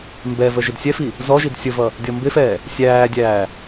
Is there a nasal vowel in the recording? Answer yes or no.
no